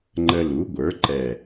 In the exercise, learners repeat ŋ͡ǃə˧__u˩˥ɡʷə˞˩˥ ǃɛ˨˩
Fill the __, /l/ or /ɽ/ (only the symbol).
l